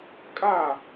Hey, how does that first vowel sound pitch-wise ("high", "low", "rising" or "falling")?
falling